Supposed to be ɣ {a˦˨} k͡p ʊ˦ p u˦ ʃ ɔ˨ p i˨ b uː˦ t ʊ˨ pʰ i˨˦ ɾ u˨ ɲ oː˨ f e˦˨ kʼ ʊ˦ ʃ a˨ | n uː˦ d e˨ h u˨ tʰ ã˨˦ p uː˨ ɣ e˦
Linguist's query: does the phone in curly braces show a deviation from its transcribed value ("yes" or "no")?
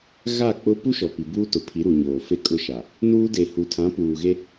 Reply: no